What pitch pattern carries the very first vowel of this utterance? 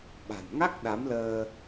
low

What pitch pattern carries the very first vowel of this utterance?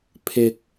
low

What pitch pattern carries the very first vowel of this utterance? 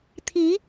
rising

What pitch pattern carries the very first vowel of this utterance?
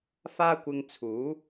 high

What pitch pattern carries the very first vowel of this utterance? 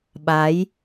rising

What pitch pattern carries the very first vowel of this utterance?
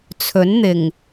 rising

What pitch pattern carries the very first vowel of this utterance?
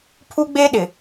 high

